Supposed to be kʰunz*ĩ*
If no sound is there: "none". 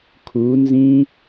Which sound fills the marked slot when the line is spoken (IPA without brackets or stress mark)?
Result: ĩ